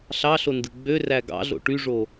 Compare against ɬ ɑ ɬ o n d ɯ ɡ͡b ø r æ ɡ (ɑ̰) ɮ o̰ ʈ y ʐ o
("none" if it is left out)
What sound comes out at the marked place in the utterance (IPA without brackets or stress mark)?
ɑ̰